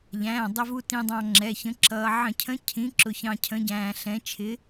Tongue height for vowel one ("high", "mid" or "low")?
low